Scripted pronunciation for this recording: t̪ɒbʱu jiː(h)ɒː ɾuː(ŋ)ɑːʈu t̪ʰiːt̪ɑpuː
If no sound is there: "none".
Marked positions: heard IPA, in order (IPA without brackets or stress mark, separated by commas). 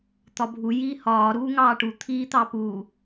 h, ŋ